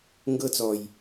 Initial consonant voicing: voiced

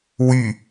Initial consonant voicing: voiced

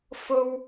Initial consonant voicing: voiceless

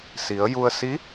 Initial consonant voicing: voiceless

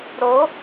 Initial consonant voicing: voiced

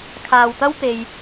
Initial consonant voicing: voiceless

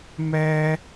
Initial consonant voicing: voiced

